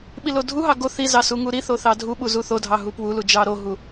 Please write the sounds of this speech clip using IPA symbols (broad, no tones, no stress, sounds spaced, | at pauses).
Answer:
ɓ i l o dʱ u ɦ ɑ ɡ o θ i z ɑ s u ŋ u ɾ i θ o θ ɑ dʱ u ɓ u z u θ o dʱ ɑ ɦ u p w u l u d͡ʒ ɑ ɾ o ɦ u